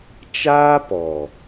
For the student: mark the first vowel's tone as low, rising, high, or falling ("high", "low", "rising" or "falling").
high